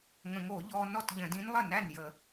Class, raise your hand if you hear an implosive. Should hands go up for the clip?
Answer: no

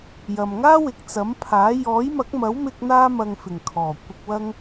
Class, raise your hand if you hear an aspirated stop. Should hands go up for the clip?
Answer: yes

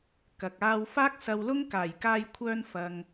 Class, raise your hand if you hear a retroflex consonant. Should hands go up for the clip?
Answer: no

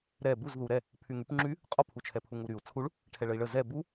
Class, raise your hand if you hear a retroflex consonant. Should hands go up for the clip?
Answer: yes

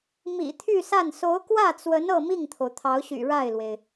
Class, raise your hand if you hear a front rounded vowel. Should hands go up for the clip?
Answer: yes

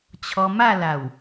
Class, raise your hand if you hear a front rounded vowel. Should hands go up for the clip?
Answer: no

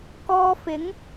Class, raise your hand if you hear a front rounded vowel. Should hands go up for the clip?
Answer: no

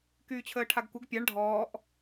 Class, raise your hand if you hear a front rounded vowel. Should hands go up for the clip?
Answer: yes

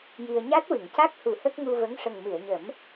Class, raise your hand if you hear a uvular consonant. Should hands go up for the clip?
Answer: no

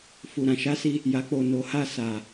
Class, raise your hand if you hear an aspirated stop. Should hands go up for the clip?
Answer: no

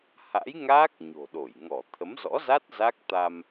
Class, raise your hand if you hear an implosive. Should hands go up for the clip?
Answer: yes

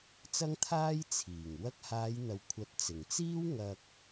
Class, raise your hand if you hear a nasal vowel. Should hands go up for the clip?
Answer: no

